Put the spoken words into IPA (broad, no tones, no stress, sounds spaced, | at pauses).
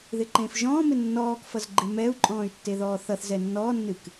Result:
ð ɪ ǃ ẽː f ʒ ɔ̃ː m ɪ nː ɔː k f ʌ z ɡ͡ǃ ɪ m ɛ u̯ ǃʼ ɔ̃ː y̯ tː e ð ɔː θ ʌ θ z ɛ nː ɔː nː ɨ k